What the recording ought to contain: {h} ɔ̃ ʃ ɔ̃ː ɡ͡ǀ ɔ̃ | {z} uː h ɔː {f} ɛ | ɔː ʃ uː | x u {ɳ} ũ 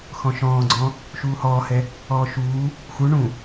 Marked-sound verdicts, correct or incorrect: incorrect: x, incorrect: ʃ, incorrect: h, correct

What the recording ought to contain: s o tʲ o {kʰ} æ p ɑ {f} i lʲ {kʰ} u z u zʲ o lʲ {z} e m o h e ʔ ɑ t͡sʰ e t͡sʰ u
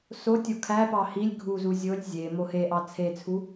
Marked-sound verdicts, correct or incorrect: correct, incorrect: h, incorrect: ɡʱ, incorrect: zʲ

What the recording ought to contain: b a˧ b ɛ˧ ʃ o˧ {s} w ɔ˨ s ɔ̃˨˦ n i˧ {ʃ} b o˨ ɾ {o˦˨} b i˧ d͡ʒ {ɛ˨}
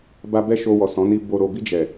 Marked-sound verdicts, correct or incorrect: incorrect: none, incorrect: none, incorrect: o˨, correct

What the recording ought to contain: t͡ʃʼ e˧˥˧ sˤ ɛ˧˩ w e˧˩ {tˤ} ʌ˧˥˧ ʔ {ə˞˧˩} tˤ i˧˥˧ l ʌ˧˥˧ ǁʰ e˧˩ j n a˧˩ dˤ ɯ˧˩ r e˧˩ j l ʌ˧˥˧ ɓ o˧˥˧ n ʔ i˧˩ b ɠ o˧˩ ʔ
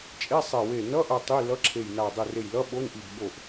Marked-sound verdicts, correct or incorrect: incorrect: n, incorrect: ʌ˧˩

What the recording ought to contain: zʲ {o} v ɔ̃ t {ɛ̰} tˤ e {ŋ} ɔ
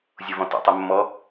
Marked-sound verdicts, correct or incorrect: correct, correct, incorrect: mː

